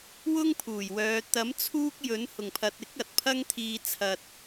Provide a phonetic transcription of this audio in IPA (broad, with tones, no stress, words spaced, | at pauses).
wʊ˥ŋpʰuː˨˩jwœː˨˧ t̪ɐ˨˥m t͡sʰuː˥k̚jɵ˨˥n hʊ˨˩ŋpʰɐ˨t̚ ɪ˨˥k̚ ɐ˨t̚pʰɐ˥ŋt̪ʰiː˧ t͡sʰɐ˧t̚